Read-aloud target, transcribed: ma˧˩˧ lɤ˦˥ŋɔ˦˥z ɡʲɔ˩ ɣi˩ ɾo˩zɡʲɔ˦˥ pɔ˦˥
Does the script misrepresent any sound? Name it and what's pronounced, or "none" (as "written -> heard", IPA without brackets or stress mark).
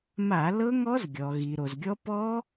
none